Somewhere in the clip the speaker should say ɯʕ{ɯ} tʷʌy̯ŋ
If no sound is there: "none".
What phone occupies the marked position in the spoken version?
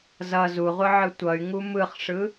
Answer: ɯ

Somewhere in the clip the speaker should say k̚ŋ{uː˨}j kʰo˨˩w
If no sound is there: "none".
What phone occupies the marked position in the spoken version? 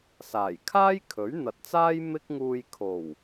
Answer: uː˨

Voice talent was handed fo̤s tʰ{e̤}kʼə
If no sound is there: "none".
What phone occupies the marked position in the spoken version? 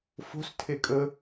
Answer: e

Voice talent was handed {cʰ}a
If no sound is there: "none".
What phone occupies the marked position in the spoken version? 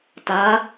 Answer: t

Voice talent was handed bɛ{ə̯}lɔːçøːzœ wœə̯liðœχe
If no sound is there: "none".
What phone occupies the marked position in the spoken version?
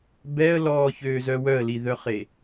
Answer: ə̯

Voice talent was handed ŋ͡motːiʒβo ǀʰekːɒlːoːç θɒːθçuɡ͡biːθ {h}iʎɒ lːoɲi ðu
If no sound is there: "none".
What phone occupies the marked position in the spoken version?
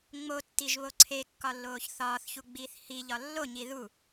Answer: h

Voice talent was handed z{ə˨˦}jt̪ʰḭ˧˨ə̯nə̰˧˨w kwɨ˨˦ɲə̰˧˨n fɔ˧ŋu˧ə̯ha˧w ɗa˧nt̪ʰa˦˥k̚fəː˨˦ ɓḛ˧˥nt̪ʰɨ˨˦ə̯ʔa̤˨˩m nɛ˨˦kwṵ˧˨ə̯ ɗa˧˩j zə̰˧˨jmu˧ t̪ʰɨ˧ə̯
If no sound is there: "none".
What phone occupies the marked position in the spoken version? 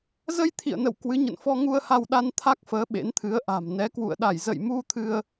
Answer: ə˧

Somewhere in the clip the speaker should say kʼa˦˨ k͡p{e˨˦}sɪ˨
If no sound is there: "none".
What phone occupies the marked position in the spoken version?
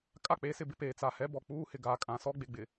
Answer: e˨˦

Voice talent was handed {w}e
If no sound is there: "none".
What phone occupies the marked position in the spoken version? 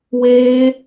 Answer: w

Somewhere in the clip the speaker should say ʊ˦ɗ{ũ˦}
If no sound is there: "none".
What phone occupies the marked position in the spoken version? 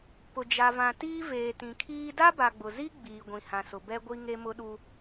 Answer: u˦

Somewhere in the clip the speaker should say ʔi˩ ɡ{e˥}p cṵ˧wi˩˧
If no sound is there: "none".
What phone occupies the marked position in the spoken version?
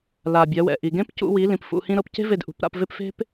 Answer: ẽ˥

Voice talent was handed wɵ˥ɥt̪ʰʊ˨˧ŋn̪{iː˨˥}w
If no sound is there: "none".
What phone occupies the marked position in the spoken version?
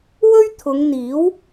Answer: iː˨˥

